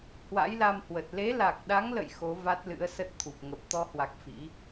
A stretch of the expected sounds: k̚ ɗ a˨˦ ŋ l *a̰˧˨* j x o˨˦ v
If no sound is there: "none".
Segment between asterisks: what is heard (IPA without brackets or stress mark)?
ə̰˧˨